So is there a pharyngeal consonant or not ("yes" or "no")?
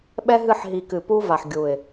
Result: yes